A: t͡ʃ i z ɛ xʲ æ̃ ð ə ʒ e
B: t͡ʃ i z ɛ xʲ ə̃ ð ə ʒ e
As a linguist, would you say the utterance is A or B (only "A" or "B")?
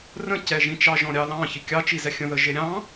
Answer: B